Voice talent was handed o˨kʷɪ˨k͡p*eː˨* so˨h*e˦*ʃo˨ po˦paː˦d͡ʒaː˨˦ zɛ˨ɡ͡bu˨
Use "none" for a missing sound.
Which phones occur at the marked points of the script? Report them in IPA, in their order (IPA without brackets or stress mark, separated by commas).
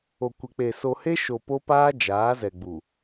e˨, e˦